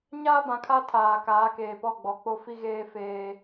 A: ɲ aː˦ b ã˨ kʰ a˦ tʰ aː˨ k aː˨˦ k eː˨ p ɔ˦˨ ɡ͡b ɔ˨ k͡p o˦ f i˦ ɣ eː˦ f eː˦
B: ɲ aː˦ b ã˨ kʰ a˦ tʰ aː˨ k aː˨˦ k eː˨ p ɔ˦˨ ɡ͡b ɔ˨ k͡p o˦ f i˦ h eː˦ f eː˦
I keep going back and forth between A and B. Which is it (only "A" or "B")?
A